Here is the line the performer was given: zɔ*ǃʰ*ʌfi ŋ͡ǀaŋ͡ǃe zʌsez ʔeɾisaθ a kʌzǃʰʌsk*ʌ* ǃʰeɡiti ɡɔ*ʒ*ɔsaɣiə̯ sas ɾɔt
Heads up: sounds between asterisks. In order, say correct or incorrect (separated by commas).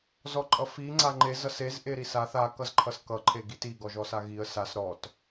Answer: incorrect, correct, correct